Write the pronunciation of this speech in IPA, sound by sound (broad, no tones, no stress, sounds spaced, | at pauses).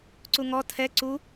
ǀ u ŋ ɔ tʰ ɛ ǀ u